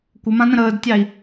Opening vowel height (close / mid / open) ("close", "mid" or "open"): mid